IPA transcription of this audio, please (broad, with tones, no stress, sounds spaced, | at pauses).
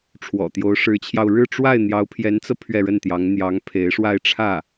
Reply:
ʈ͡ʂʰ w ɔ̰˨˩ t̪ j o˧˥ ʊ̯ ʂ ɻ̩˧˥ t͡ɕʰ j ɑ˧ ʊ̯ ɻ ɻ̩˥˧ ʈ͡ʂ w a˥˩ ɪ̯ n̪ j ɑ˧˥ ʊ̯ pʰ j ɛ˧˥ n t͡s ɤ˧ pʰ ɥ ɛ˥˧ ɻ ə˥˩ n t̪ j ɑ˧˥ ŋ n̪ j ɑ˧˥ ŋ pʰ e˧˥ ɪ̯ ʂ w a˥˧ ɪ̯ ʈ͡ʂʰ ä˥˩